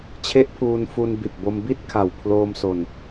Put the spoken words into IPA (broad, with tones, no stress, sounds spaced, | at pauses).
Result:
t͡ɕʰ e˦˥ ʔ pʰ uː˧ n f u˧ n b i˨˩ t̚ b o˧ m b i˥˩ t̚ kʰ a˨˩ w pʰ l oː˧ m s o˧ n